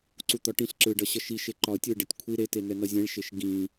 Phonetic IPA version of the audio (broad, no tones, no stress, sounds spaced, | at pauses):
ǀ u t̪ ɒ ʈ ĩ ɬ ǁ ɯ ɖ ʌ ɕ ʌ ʃ i ʃ e ǃ ɒ ə̯ tʲ ɯ ɖ e tʲ kʷʰ i ɾ e t e n ɛ n ʌ zʲ ɛ̃ ɭ ʃ e ʃ ɡ ĩ